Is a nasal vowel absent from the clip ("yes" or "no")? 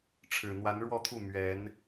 yes